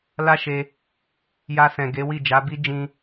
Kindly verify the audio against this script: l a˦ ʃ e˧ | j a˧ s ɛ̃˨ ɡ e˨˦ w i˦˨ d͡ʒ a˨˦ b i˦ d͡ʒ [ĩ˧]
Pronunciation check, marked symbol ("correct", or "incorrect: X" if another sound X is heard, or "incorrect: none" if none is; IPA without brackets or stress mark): correct